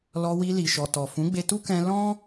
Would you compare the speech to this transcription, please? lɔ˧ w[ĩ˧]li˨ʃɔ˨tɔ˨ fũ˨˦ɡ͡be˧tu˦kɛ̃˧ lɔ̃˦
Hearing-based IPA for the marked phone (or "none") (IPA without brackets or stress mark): i˧